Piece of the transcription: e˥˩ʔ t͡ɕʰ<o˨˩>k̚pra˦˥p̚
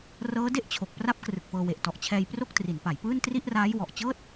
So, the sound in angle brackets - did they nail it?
yes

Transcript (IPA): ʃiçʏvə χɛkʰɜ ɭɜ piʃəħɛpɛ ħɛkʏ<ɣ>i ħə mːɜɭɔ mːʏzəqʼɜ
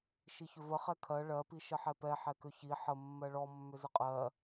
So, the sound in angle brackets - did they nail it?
no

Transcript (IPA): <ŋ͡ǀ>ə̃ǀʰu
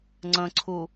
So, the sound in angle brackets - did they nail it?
yes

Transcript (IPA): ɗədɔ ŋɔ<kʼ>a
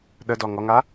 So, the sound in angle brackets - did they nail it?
no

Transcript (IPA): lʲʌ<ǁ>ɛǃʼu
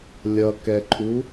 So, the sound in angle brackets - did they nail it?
no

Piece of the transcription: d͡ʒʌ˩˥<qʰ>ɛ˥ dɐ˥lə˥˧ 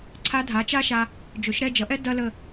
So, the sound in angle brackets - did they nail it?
no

